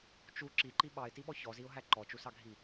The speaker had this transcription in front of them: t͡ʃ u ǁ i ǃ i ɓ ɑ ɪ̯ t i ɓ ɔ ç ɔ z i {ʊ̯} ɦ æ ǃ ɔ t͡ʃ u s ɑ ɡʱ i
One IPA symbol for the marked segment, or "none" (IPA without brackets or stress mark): ʊ̯